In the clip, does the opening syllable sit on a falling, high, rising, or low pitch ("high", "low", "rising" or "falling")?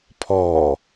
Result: low